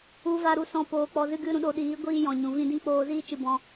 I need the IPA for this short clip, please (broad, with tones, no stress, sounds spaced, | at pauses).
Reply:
u˦ v a˦ ɾ u˧ s ɔ̃˦ p oː˧ k͡p ɔ˧ z ɨ˦ ɡ ɨ˦ ɾ ũ˧ ɗ o˧ ɗ iː˨˦ ɡʷ iː˧ j ɔ̃˨ ɲ ũ˨ v ĩ˦ d ĩ˦ k͡p oː˧ z iː˦ t͡ʃ ɨ˧ b ɔ̃˦